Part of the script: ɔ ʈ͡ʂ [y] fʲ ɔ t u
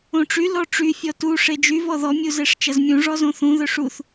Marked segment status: correct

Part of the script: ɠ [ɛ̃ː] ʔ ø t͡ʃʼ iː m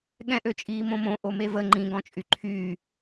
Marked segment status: incorrect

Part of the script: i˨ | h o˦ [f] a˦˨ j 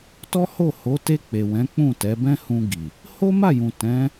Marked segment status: incorrect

